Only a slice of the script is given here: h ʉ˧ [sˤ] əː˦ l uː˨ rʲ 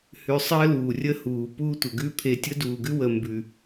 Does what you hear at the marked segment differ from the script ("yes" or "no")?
no